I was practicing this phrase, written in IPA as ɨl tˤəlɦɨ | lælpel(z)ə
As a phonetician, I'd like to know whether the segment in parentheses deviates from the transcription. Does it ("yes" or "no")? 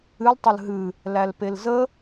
no